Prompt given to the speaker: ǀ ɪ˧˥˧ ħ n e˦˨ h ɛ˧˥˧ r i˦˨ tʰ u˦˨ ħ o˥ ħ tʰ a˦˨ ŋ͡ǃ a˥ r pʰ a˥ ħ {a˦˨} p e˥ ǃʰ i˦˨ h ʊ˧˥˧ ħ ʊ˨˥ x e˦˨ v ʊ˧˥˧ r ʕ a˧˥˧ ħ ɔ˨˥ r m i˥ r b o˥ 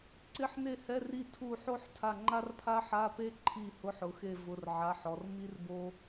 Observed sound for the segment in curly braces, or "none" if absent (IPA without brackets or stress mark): a˧˥˧